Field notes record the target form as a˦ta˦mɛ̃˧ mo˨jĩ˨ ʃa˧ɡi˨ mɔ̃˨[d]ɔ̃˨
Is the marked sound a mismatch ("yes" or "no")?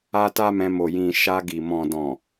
no